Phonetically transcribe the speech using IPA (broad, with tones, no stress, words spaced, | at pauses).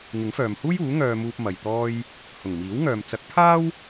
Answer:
ŋɪ˨˥ŋfœː˨mhuː˥juː˨˥ ŋœː˧muː˧p̚ mɐ˨j t̪ɔː˧j | hʊ˨˩ŋmiː˨˥wŋœː˨m t͡sɐ˨˥k̚pʰaː˥w